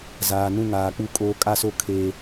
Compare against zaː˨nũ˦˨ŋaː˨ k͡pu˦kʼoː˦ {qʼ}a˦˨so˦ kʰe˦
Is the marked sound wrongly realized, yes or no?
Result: yes